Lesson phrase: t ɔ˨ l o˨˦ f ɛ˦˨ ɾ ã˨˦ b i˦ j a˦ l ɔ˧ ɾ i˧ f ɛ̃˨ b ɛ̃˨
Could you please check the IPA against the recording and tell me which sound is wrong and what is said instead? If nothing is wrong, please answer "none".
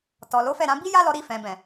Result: none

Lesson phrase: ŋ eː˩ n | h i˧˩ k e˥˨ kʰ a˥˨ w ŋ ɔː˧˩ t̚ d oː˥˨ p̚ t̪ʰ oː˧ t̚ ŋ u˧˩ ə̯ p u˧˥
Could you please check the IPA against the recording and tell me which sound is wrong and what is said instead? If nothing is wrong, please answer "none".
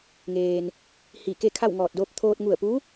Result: none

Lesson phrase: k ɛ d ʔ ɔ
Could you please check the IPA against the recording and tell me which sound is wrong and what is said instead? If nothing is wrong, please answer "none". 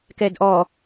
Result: none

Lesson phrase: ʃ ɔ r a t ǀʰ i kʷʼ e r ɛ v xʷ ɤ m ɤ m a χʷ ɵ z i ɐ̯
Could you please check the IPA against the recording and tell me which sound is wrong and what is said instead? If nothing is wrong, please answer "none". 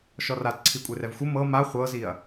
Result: ɵ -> ɤ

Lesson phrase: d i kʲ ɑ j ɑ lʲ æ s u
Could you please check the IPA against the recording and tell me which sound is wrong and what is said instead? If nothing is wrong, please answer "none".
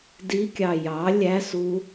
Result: none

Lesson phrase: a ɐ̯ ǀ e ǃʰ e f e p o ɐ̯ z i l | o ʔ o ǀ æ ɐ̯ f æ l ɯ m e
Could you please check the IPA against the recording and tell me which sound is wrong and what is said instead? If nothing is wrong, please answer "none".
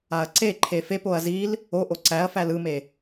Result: none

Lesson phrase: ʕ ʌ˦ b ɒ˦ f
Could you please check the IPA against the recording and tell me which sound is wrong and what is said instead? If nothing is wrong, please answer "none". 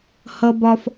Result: ʕ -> h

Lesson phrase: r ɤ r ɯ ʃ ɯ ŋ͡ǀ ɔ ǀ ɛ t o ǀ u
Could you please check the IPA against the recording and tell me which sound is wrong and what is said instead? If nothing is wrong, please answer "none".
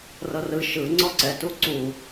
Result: o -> u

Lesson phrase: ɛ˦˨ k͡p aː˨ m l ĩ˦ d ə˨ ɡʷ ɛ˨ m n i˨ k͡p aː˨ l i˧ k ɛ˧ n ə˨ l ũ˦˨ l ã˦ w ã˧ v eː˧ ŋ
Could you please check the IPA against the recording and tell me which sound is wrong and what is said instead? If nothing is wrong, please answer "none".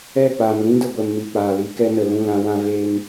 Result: none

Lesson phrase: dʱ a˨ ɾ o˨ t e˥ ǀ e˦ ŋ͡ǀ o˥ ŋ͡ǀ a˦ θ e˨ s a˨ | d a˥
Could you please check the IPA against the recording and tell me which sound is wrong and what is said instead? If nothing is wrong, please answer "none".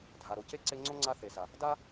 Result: t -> c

